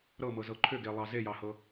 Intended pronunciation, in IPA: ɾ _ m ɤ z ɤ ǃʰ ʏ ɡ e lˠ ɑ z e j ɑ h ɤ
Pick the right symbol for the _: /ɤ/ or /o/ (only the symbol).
ɤ